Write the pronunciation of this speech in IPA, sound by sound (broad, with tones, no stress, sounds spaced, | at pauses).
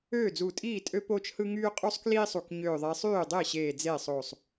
øː˥˩ d͡z u˧˩ tʼ iː˥˩ tʼ ø˥ p oː˥ t͡ʃ h ɯ˥ ŋ yː˥ qʼ u˥ sˤ k l iː˥ sˤ u˧˩ k ɲ øː˧˩ ðˤ e˨˦ sˤ yː˥˩ dˤ e˥˩ ɕ eː˧˩ d͡z eː˥˩ sˤ oː˧˩ sˤ